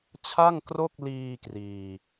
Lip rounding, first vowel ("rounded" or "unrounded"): unrounded